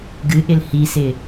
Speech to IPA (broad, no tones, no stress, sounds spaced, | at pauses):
ɡ ɨ ʔ ɪ l h i s ɪ